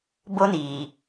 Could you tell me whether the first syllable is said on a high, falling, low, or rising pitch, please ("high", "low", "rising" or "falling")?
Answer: high